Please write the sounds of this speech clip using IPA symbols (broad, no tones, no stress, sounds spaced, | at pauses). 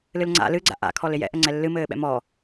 l ɨ l ŋ͡ǀ a̰ l ɨ ɡ͡ǀ a̰ ʔ a̰ kʰ ɔ l ɪ j ɛ̰ ʔ ə ŋ͡ǀ ɛ lː ɨ m ɘː ɓ ɛ̰ m ɔ